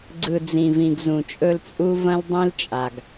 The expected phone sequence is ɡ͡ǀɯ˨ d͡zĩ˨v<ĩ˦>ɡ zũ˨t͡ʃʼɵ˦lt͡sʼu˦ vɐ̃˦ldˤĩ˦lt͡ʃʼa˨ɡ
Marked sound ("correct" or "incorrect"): incorrect